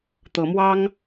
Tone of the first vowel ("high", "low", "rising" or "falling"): rising